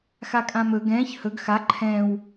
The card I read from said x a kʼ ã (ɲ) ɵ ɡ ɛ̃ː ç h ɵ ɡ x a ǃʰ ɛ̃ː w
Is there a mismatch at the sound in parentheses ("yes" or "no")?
yes